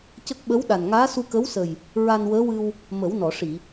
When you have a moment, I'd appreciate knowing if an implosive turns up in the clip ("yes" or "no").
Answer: yes